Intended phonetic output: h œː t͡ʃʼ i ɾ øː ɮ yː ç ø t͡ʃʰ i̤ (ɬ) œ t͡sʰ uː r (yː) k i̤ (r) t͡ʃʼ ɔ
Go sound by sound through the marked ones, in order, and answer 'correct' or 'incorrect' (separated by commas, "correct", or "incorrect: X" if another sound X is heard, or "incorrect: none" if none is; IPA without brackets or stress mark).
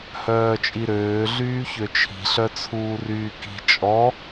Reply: correct, correct, incorrect: none